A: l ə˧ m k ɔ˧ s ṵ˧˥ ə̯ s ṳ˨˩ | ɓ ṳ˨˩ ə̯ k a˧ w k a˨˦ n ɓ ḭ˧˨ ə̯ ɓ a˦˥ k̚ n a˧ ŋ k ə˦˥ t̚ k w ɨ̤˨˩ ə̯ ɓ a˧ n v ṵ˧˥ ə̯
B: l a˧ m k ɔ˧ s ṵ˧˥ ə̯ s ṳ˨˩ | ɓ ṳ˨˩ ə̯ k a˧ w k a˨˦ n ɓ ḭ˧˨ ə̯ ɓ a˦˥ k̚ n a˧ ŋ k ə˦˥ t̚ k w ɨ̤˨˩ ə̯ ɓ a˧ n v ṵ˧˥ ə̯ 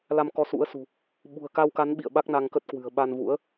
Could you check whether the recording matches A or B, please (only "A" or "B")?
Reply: B